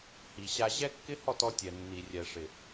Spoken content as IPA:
h i˨ ɕ a˦ ʑ ɛ˦ kː ɪ˦ h ɔ˦˨ t ɔ˦ tʲ ɛ˨ nː i˨ rʲ ɛ˨ ʂ ɪ˨

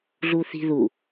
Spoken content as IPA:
ɮ u θ i̤ ð u

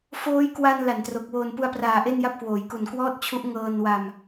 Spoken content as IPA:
f oː˦˥ j k w a˧ n l a˨˩ n t r o˨˩ k̚ w oː˨˩ n p u˧ a̯ p r aː˨˩ ʔ e˥˩ n j a˥˩ p̚ k w oː˩˦ j k u˨˩ n k w ɔː˥˩ t̚ t͡ɕʰ u˦˥ ʔ ŋ ɤː˧ n w a˧ m

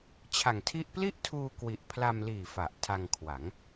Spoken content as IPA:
t͡ɕʰ a˨˩ ŋ tʰ i˥˩ ʔ p l i˥˩ ʔ tʰ uː˧ k w i˨˩ ʔ pʰ l a˧ m l iː˨˩ f a˨˩ ʔ tʰ a˧ ŋ kʰ w a˩˦ ŋ

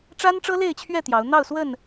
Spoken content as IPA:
ʈ͡ʂ a˦ n ʈ͡ʂ ɤ˦ l e˥˨ ɪ̯ t͡ɕʰ ɥ ɛ˥˨ t̪ j ɑ˨˦ ʊ̯ n̪ ɑ˥˨ ʊ̯ s w ə˥˨ n

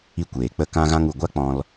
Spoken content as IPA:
i˧ kʷ eː˨ k͡p ə˧ k ã˧ ɣ ã˧ ŋ u˨ ɡʷ a˦ k͡p ɔ̃˧ l

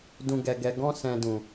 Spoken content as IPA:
d ũ˨ ɡ ɛ˨ ɡ ɛ˨ ɡ ɔ̃˧ s ɛ̃˨ d ũ˨

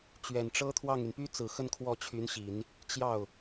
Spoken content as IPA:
t͡ɕ ɥ ɛ˨˩ n ʈ͡ʂ ɤ˥ t̪ʰ w ɑ˥˩ ŋ y˩ n p y˥ t͡s ɹ̩˨˩ x ə˥˧ n kʰ w ɔ˥˩ t͡ɕʰ y˧˥ n ɕ i˨˩˦ n | t͡ɕ j ɑ˥˩ ʊ̯

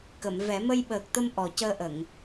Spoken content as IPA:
k ə˨˩˨ m v ɛ˨˩˦ m ə˧ j ɓ əː˨˩ k̚ t̪ ə˧ m ʔ ɔ˨˩ c əː˧ ʔ ə˨˩˨ ŋ

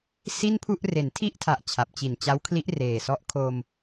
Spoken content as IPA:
s i˥˩ n pʰ u˥˩ ʔ r e˩˦ n tʰ i˥˩ ʔ tʰ a˨˩ ʔ t͡ɕʰ a˨˩ p̚ t͡ɕ i˨˩ n t͡ɕ a˦˥ w kʰ l i˦˥ ʔ r eː˨˩ s ɔ˦˥ ʔ kʰ o˧ m

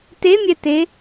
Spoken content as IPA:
t e mʲ ɛ t e

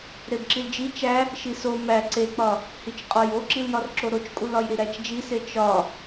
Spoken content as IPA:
ɾ e b ǁ i l d͡ʒ i t͡ʃ æ | ʃ i s o m æ ǀ e k͡p ɒ | h i t͡ʃ qʼ ɒ j o ǁ i l j ɒ r ǁ o ɾ o t͡ʃ kʼ u l ɒ j ɾ i ɾ æ t͡ʃ d͡ʒ i s e t͡ʃ ɒ

